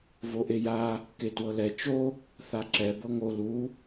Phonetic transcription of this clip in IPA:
v o ʔ e j a | k e t w ɤ l ɛ t͡ʃ o | θ a ǁ ɛ b ɤ ŋ o l u

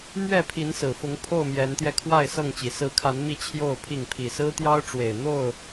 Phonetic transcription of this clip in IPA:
m ɥ ɛ˥˨ pʰ i˨˦ n s ɹ̩˨˩ f ʊ˨˦ ŋ pʰ o˥˨ ʊ̯ m j ɛ˨˦ n t̪ j ɛ˧ kʰ w a˥˨ ɪ̯ s ɤ˥˨ ŋ t͡ɕ i˨˩ s ɹ̩˨˦ kʰ a˨˦ n m i˥˨ t͡ɕʰ j o˥˨ ʊ̯ pʰ i˥˨ ŋ pʰ i˨˩ s ɹ̩˦ t̪ j ɑ˦ ʊ̯ ʈ͡ʂ w e˨˩ ɪ̯ n̪ o˥˨ ʊ̯

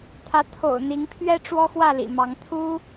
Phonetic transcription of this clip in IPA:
t̪ʰ ä˨˦ t̪ʰ o̰˨˩ ʊ̯ n̪ i˨˦ ŋ pʰ ɥ ɛ˦ ʈ͡ʂ w ɔ˦ x w ä˥˨ l ḭ˨˩ m ɑ˨˦ ŋ t̪ʰ u˦

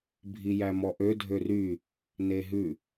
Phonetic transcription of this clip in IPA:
bʱ i j æ m ɔ ʔ ø dʱ ø r y | n e ɦ ʉ

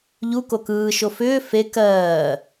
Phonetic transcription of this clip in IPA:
ʎ u k o k ɯː ʃ o f ʏː f e k ɜː

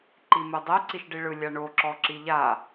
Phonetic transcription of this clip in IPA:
ǃ i m ɯ dˤ ɛ ǀ i ʃ ɖ i ɭ ɯ lʲ a ɳ o ǁ ɔ ǁ i ʎ a

